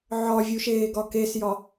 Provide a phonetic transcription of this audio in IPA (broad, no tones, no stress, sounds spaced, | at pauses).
ʕ ɒ vʲ u ʃ eː ɡ ɒ k e s j ɒ